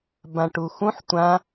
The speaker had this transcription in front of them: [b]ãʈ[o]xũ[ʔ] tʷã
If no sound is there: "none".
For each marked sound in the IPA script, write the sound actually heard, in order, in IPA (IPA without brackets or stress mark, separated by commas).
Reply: b, u, ħ